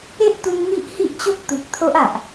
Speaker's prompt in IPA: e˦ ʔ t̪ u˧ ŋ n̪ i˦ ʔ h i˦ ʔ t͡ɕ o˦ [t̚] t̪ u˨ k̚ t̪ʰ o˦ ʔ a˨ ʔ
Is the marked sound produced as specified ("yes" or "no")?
no